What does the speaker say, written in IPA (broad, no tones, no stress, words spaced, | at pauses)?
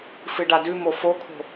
fɨɖadʉmo fokʰo̤